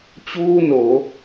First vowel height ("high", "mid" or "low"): high